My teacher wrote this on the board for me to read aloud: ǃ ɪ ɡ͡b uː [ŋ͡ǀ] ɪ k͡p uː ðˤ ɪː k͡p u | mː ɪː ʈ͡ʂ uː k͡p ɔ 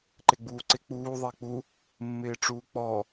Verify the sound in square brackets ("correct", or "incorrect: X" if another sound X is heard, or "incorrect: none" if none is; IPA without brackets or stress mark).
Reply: incorrect: ǀ